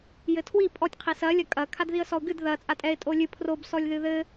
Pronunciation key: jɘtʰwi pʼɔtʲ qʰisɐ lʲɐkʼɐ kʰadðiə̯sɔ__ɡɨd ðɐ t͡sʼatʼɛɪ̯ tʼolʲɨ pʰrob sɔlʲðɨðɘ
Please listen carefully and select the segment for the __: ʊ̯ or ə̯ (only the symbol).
ʊ̯